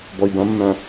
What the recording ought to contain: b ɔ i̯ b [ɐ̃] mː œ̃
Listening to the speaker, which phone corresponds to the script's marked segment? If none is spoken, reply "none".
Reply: ɐ̃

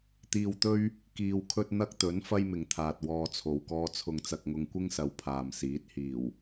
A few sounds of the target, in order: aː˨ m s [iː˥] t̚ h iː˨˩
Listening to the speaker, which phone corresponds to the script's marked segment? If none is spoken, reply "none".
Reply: iː˨˥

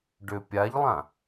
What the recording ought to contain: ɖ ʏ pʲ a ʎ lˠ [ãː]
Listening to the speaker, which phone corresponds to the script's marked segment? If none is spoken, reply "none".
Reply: ã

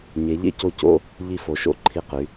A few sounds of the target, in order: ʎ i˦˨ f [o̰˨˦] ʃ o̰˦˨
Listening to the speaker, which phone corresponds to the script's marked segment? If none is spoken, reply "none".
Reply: o˨˦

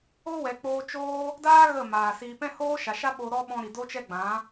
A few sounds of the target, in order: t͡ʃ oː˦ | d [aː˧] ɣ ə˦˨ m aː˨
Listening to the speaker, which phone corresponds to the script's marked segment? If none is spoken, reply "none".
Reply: aː˦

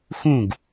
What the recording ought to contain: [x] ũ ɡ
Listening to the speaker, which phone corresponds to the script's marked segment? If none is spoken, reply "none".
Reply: x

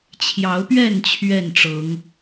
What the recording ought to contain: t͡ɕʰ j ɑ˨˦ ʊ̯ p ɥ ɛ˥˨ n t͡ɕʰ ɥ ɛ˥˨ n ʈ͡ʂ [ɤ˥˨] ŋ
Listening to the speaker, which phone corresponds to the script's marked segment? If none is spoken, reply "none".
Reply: ɤ˨˦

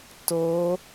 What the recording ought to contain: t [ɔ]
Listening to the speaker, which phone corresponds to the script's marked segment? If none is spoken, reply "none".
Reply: o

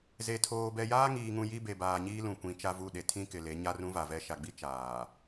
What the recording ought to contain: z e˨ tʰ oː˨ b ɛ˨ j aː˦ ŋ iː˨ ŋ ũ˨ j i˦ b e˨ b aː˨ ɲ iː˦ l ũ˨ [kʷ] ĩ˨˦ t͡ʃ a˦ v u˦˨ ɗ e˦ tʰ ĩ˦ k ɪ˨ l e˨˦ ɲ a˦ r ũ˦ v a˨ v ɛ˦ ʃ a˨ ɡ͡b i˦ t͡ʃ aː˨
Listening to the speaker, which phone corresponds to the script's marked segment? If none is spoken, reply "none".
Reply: kʷ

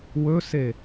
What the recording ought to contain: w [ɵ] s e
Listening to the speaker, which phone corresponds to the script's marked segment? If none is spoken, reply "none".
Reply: ɵ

